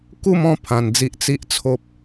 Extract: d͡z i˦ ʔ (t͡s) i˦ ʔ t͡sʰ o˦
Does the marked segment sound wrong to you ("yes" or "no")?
no